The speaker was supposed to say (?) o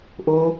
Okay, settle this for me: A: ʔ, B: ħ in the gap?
A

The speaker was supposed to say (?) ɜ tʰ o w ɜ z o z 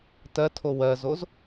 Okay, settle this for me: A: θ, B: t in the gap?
B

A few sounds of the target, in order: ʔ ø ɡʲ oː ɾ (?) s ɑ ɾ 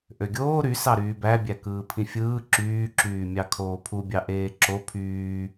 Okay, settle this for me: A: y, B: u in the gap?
A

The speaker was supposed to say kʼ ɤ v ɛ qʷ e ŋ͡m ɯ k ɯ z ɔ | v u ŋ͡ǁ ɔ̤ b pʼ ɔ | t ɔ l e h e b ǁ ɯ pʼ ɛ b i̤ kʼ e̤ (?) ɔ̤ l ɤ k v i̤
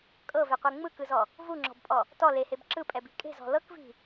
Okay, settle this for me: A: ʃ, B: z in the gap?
B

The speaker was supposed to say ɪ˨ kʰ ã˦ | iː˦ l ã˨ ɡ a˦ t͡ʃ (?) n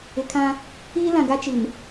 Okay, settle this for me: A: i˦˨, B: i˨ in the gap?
B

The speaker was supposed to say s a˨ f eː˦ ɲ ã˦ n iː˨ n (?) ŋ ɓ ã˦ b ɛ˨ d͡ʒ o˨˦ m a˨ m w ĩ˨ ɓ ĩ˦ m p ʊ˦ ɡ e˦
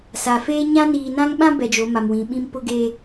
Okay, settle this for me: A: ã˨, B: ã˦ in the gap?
B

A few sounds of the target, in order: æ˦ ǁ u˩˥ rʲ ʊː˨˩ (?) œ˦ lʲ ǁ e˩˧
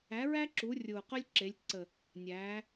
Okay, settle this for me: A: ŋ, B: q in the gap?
B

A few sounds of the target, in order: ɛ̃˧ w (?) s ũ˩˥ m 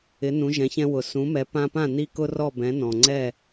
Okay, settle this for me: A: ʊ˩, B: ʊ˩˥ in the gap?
A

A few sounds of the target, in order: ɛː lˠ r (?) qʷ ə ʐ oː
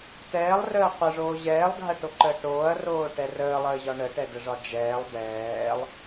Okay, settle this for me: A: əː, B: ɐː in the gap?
A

